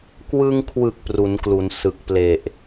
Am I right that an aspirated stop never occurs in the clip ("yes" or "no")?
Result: no